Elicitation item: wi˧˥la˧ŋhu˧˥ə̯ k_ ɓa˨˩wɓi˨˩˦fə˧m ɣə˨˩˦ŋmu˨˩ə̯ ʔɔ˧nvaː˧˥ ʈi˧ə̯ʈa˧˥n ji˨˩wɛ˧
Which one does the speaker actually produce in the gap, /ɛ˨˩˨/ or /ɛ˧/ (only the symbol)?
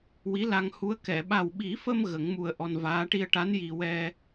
ɛ˨˩˨